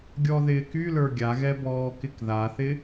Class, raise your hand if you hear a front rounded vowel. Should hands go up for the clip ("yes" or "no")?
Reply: yes